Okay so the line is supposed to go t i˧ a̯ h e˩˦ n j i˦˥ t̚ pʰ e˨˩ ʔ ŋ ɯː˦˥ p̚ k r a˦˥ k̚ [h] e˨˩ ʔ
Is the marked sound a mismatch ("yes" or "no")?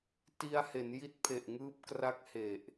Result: no